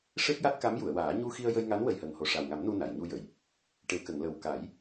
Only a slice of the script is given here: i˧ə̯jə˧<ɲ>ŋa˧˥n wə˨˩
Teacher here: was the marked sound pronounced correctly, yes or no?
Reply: no